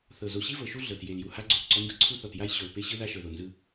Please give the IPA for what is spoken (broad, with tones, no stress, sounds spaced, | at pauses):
θ ɤ˨ z o˨ ɕ i˦ v ɤ˨ ʃ u˦ ɮ ɤ˨ t j e˨ l j u˨ h a˦ ɡ͡ǀ o˨ θ ǀ ɔ˦ n d ɤ˦ ǀʰ u˦ θ ɔ˨ t j a˦ j ɕ o˨ l p e˦ ɕ ɯ˦ ð a˦ ʃ ɤ˨ ð o˨ n z ɯ˦